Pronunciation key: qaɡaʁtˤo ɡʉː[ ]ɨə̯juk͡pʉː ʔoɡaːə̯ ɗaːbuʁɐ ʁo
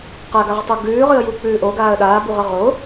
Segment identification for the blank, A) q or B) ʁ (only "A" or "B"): B